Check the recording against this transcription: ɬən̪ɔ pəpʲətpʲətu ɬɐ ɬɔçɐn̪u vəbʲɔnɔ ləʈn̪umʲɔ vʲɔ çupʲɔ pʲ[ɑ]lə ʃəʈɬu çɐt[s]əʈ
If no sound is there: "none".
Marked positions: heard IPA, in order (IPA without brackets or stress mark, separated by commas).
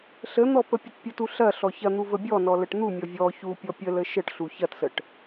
ə, s